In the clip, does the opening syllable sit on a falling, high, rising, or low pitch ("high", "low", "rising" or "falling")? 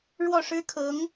falling